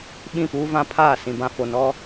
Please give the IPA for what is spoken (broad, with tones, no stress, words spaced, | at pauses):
ɓĩ˦˨puː˦vã˦pʰaː˦˨ sĩ˨bã˨fo˨ nɔ˦